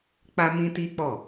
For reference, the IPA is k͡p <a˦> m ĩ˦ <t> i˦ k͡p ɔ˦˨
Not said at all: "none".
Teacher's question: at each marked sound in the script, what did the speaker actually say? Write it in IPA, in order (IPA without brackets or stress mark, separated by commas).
a˦, t